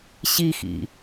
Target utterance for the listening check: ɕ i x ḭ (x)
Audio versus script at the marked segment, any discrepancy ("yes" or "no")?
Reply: yes